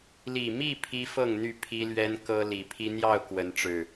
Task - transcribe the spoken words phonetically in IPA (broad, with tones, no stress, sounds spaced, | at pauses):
l i˨˩ m i˥˨ pʰ i˦ f ɤ˥˨ ŋ n̪ y˥˨ pʰ i˦ l ɥ ɛ˦ n k ɤ˦ l i˨˩ pʰ i˦ n̪ j ɑ˥˨ ʊ̯ k w ə˨˦ n ʈ͡ʂ ɻ̩˨˩